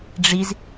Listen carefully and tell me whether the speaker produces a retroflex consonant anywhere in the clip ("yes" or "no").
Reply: yes